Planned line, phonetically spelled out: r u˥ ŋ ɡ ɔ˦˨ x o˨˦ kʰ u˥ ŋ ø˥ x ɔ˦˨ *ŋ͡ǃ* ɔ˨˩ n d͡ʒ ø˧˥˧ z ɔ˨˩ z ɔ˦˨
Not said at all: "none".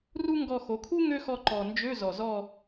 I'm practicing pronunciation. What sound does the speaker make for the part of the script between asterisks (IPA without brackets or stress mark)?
ǃ